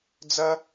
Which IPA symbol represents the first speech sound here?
d͡z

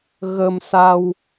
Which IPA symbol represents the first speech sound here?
ɣ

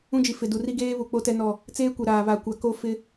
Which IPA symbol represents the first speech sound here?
ũ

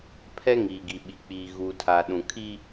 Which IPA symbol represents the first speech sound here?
pʰ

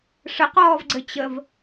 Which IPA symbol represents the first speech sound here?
ʂ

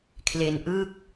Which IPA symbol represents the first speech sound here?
kʰ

